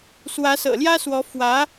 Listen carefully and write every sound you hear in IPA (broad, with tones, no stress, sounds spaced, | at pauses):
s w ä˧˥ s ɤ̰˨˩ l j ä˥ s w ɔ˧˥ f w ä˧˥